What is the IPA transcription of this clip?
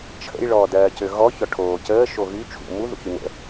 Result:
t͡ʃʰə̰j ɭɔːdɜːcøɣɔ çɔʈʰoːcəː ʃoɣy t͡ʃʰṵ mu ðṵçynə̰

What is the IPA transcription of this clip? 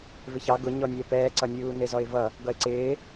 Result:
vɪçɑ ɡʊɲɔ nʲɛpɛːǀʌ nʲuːnɪzɔɪ̯vʌ | ɡʌɪ̯ǀɪː

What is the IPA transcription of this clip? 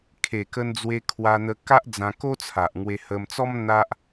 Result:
kʰe˨˩kə˧n d͡zwe˧kʰwa˧n̪ə˧ka˦ʔ d͡zã˧ko˦t͡sʰa˨ʔ ŋwe˧hə˧mt͡sɔ˦m n̪a˦ʔ

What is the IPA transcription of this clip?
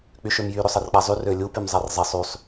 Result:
k͡pyʃømjy ɾøsˤʌrk͡pazˤy rølʲu pymzˤarzˤesˤ ysˤ

